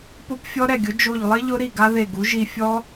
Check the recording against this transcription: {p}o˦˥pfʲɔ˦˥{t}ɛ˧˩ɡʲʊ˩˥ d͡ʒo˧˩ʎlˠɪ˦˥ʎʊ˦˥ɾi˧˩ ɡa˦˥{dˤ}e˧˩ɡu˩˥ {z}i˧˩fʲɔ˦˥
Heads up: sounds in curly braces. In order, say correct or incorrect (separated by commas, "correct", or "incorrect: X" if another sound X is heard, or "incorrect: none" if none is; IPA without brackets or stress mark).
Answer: correct, incorrect: ɾ, incorrect: ð, incorrect: ʒ